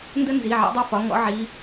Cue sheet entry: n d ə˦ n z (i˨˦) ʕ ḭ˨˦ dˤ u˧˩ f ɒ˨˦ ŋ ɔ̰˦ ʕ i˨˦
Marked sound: incorrect: i˩˧˩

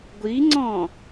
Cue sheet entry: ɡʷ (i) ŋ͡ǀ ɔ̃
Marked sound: correct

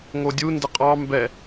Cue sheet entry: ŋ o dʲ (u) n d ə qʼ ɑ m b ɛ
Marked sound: correct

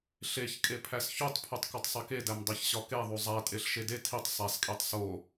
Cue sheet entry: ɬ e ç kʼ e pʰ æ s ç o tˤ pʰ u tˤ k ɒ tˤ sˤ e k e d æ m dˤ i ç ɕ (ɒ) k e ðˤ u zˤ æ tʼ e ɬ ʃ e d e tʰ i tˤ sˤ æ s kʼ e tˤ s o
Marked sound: correct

